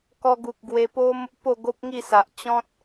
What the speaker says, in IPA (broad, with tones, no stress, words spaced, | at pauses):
kɔ˧ɡu˨k̚ ɡwe˧po˦m | po˥˧ɡo˦p̚ŋi˥˧sa˨ʔ t͡ɕɔ̃˦t̚